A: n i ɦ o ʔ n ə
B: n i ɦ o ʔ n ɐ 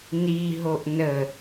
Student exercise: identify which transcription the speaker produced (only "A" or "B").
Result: A